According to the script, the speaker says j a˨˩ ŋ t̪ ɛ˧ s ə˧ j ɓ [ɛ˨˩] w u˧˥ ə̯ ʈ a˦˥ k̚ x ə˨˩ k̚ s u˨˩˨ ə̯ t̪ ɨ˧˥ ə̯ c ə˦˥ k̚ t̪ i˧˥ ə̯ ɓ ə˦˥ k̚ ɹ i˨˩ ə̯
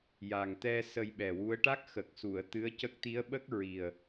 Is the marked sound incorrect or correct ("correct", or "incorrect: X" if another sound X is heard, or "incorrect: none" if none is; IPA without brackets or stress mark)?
correct